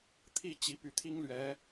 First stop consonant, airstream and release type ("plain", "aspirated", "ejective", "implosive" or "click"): aspirated